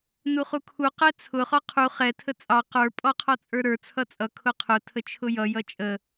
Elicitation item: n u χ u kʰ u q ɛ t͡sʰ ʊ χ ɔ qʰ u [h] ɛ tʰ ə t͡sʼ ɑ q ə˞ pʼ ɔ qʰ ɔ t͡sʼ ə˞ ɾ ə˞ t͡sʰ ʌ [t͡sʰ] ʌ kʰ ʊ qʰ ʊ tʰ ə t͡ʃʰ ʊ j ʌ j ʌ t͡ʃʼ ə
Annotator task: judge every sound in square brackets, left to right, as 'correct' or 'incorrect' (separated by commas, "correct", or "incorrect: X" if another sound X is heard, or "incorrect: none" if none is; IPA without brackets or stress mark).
incorrect: χ, incorrect: t͡sʼ